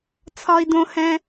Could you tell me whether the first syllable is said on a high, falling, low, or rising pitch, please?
high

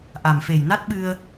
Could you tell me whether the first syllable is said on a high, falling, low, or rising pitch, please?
low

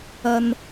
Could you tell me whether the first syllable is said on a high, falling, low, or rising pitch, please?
low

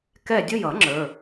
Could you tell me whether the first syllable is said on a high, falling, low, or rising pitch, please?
falling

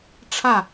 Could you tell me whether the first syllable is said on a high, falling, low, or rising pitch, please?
falling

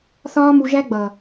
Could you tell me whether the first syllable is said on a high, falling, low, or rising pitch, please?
high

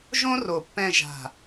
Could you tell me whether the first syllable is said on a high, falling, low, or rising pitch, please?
high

